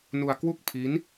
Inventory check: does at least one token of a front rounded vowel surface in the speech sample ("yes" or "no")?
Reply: no